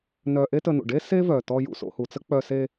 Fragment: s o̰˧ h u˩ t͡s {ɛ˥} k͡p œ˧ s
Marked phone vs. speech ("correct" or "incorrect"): incorrect